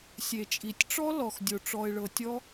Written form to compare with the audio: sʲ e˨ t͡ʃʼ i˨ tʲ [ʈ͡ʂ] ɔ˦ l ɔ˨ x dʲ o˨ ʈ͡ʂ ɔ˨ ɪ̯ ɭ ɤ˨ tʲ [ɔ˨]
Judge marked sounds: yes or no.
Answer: yes, no

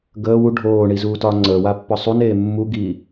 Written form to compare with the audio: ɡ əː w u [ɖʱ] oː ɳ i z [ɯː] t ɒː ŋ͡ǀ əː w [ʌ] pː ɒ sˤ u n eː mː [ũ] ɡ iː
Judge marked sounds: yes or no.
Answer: yes, no, no, no

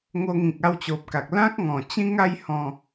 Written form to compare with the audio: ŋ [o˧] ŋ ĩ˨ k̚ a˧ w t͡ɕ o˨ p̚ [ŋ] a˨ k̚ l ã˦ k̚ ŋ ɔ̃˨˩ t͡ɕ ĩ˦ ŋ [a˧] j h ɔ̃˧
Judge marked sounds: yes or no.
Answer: yes, no, no

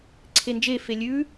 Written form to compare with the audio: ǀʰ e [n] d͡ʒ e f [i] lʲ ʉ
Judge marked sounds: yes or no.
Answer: yes, no

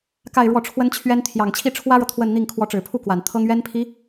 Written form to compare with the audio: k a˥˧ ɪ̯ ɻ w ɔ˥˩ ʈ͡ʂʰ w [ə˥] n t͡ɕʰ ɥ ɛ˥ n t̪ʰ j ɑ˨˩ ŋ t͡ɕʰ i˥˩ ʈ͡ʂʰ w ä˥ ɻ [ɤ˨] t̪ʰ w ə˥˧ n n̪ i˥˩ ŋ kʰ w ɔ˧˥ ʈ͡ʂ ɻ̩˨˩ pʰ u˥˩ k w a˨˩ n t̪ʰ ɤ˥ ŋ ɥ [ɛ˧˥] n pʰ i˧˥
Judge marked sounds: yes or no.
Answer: yes, yes, no

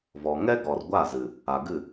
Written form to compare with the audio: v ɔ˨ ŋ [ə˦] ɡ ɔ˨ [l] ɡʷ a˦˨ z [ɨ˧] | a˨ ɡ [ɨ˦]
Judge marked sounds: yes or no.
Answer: no, no, no, no

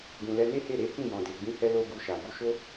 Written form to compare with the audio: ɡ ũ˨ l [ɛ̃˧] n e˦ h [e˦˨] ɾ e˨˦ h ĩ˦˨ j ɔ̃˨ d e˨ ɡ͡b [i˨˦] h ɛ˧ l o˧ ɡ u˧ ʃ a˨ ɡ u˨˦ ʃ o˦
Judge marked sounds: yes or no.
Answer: no, yes, no

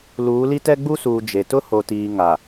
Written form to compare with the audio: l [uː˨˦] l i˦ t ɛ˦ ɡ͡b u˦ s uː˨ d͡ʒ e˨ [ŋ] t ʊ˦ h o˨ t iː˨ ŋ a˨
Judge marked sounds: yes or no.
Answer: yes, no

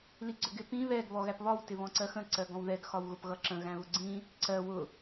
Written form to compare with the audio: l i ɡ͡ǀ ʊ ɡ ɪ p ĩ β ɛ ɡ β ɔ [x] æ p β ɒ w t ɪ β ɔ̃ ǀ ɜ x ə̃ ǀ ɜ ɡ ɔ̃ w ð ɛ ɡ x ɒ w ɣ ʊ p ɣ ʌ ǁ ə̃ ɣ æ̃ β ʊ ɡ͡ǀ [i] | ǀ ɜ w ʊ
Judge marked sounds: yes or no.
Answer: no, no

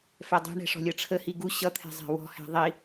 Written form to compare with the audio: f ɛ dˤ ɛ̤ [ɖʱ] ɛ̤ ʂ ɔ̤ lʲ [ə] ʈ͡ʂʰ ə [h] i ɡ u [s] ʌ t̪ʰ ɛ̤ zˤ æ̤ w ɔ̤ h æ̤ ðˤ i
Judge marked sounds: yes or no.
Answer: no, no, yes, no

